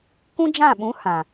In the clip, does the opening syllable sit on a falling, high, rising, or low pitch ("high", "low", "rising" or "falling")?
high